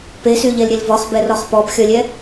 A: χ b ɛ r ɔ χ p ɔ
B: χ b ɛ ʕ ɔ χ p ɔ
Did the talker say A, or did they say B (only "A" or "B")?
A